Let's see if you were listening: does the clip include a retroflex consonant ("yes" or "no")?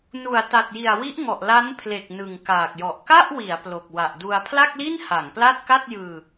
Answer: no